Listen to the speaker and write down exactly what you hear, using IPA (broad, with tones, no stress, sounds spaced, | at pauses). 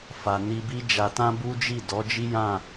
f a˨ n i˧ b i˦ d͡ʒ a˧ t ã˦ b u˦ d͡ʒ i˦˨ d ɔ˨˦ d͡ʒ i˦ j ã˦˨